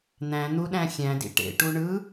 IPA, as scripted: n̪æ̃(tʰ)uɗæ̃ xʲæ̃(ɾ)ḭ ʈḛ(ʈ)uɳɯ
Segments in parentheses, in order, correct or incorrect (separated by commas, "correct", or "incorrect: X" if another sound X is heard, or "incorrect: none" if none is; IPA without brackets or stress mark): incorrect: n̪, incorrect: d, correct